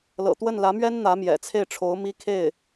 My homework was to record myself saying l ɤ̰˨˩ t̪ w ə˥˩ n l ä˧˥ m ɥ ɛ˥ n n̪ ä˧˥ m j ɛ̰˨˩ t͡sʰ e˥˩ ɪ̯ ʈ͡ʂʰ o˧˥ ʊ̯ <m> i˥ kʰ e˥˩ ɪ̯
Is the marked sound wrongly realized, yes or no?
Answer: no